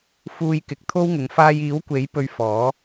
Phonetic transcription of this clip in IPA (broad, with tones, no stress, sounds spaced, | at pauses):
f uː˧ j k ɪ˨˥ k̚ t̪ʰ o˥ w ŋ ʊ˨˧ ŋ f aː˧ j iː˨˥ w kʷ e˨˥ j p ɵ˧ ɥ f ɔː˨˥